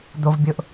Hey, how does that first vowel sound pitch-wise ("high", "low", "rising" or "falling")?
high